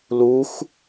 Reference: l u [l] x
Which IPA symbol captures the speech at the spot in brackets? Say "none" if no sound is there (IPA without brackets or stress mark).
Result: none